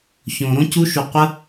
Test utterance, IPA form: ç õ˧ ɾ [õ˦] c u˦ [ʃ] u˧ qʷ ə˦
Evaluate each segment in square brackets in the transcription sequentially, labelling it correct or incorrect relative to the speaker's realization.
correct, correct

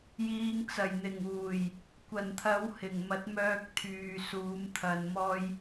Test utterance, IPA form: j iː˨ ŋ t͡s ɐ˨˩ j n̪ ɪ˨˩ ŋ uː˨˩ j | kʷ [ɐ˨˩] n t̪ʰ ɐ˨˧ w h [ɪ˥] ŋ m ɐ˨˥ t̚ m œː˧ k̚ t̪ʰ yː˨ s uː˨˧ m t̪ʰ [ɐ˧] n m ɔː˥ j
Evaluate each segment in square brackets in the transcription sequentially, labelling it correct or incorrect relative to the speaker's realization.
correct, incorrect: ɪ˨˩, correct

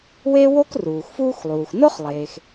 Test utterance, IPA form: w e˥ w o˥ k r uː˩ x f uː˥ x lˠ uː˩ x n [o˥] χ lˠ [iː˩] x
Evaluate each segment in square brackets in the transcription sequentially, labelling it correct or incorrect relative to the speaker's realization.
correct, incorrect: eː˩

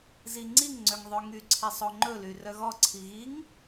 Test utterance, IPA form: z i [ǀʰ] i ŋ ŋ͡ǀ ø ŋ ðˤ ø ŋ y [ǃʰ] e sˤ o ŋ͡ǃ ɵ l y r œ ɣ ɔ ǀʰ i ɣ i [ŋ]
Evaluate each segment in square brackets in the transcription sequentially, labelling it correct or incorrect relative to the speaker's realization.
incorrect: ŋ͡ǀ, incorrect: ǀʰ, correct

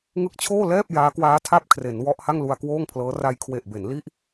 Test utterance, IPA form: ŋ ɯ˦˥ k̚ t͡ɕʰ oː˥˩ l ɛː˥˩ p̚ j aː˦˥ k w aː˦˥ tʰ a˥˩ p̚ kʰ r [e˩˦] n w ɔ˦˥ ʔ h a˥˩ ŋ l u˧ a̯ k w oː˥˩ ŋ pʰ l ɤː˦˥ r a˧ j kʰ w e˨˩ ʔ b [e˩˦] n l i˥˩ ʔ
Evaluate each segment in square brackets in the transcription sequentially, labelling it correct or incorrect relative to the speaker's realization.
correct, correct

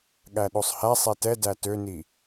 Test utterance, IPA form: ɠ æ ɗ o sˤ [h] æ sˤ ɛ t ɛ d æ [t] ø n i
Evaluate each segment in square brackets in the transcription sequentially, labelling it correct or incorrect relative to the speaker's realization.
correct, correct

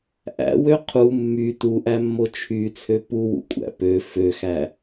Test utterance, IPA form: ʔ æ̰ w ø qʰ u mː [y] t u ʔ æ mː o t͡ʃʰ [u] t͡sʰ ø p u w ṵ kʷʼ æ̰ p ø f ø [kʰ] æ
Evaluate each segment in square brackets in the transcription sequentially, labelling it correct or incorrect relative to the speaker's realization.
correct, incorrect: y, incorrect: x

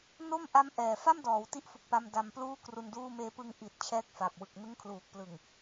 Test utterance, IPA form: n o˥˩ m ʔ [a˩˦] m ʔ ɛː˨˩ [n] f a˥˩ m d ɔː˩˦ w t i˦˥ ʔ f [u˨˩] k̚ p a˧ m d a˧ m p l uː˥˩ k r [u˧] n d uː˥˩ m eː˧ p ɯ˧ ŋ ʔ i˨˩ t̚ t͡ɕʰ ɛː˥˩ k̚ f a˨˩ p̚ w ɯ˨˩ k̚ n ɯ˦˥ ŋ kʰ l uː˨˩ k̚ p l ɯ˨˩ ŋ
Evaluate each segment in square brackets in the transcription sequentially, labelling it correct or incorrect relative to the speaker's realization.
incorrect: a˦˥, incorrect: none, correct, correct

